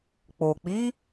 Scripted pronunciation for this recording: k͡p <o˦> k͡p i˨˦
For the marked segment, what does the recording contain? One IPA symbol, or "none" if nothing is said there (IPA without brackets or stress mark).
o˨